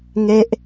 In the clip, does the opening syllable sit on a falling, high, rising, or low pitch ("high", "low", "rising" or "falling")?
high